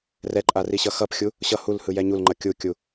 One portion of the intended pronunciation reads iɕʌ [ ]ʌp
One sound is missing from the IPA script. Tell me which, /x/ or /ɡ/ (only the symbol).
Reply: x